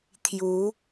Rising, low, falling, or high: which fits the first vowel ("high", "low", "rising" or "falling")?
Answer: rising